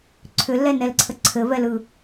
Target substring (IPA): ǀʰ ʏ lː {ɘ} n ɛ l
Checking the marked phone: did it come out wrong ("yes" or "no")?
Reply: yes